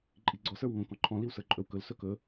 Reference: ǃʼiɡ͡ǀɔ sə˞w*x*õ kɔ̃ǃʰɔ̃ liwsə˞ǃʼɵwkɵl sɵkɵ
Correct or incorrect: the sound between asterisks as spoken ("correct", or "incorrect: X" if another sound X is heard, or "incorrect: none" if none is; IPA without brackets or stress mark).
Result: incorrect: ŋ